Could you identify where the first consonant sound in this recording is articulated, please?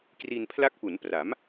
velar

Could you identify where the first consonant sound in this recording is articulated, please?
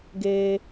velar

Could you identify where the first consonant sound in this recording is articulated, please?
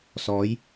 alveolar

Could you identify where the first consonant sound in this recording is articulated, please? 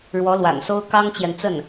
retroflex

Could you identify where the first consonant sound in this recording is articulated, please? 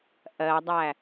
glottal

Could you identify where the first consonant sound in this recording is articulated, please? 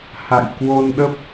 glottal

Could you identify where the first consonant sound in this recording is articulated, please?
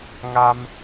velar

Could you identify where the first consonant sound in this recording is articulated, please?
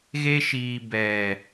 velar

